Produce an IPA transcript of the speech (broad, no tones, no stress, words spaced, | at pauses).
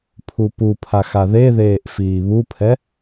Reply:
pʰupupʰax aðeðeːʔ fiːβupʰɛ